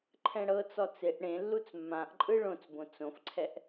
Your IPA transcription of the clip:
ǃʰɛ̃ɽɤt͡sɔ t͡seʔ ɽẽlːut͡s mːãʔǃʼɯ ɭõt͡sbõ t͡sõfǀʰɛʔ

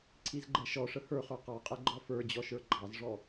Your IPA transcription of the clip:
ǀʰizɡ͡ǃɛʃɔʂə hə˞χə˞ qɑqʼɛ ɡ͡ǃɔfə˞d͡ʑɔ ʃə˞ɡ͡ǃɑzʐɔ

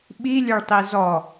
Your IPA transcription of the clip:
ɓilʲœɭtˤi zɔ

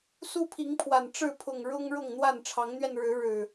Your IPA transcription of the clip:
su˦pʰi˨˦ŋpʰwa˨˩n ʈ͡ʂɻ̩˥˨ pʰʊ˨˩ŋ ɻʊ˦ŋ ɻʊ˥˨ŋn̪wa˥˨n ʈ͡ʂʰɑ˨˦ŋn̪ɥɛ˧nɻɻ̩˨˦ɻɻ̩˨˩

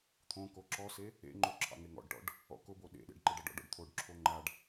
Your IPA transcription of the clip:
t̪ʰõko ǁɔse | ḛŋ͡ǃo ǁʰɑ̰ŋeŋɔ̰ɖʈɔ̰ɖ | ɔ̰kʊbo ɗḛɗḛɖ ǃeɖɑɖɔ̰ɖɔ̰ɖ t̪ʰoɖǁʰo ŋ͡ǃaɖ

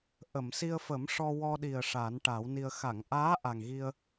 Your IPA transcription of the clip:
ʔə˨˩˨msi˧ə̯fə˨˩˦m ʂɔ˧wɔ˧ɗi˨˩ə̯ ʂa˨˩˦nʈa˨˩˦wni˧ə̯ xa˨˩˨ŋʔaː˧˥ ʔa˨˩ŋɣi˧ə̯

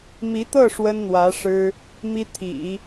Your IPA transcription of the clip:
mi˧˥t̪ɤ˥˩ ʂwə˥nn̪wä˧˥ ʂɻ̩˥ | mi˥ t̪ʰḭ˨˩˦

